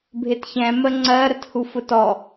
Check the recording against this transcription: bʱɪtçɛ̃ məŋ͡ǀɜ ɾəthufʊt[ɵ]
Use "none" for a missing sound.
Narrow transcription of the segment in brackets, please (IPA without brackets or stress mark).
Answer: ɔ